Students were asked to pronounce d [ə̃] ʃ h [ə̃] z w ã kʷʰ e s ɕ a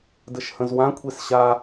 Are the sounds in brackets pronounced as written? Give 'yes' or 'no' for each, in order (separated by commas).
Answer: no, yes